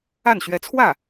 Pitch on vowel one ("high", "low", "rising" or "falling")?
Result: falling